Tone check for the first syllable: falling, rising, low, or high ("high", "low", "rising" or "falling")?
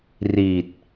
low